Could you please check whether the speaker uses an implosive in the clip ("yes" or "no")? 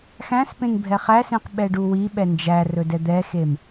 yes